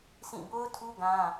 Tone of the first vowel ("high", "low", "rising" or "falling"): falling